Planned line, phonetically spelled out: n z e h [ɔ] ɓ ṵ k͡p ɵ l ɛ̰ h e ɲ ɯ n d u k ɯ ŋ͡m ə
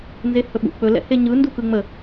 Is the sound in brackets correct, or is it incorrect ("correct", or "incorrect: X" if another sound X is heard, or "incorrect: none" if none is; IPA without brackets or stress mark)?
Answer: incorrect: ɵ